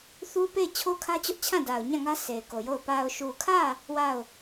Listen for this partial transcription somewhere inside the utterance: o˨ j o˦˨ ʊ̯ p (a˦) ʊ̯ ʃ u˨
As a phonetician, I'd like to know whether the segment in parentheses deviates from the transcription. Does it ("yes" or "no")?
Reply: yes